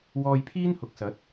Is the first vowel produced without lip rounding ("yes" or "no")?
no